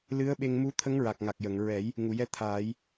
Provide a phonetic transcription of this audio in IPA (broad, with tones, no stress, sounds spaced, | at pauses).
l ɨ˧˥ ə̯ ɓ e˧ ŋ m u˧˥ t̪ʰ ə˧˥ ŋ ɹ a˨˩ k̚ ŋ a˨˩ k̚ j ə˨˩˨ ŋ ɹ ɛ˨˩˦ j | ŋ u˨˩˨ j ɛ˧˥ t̪ʰ aː˨˩˦ j